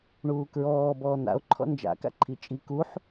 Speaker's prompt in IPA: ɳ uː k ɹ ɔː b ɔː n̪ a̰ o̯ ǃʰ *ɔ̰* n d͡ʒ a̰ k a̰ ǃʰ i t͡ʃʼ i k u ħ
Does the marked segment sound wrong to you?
no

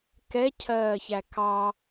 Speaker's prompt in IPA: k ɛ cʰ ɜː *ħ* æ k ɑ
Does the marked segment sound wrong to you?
yes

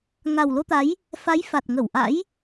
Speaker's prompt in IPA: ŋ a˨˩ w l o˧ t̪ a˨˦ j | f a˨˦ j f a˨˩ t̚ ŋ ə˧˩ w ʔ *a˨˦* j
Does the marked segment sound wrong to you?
yes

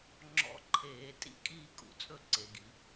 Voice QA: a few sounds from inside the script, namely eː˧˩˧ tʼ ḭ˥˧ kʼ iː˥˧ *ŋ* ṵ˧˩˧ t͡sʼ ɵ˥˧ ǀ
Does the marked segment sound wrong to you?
yes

